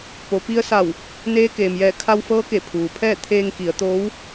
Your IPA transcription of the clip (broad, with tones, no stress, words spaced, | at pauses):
po˩pi˧ə̯sa˧˩w | neː˧˥keː˩mjɛː˧˩ kʰa˧wfɤː˧˥ ke˧˩pʰuː˩pʰɛː˥˨ t̪ʰeː˧ŋki˩˧ə̯t̪oː˧˥w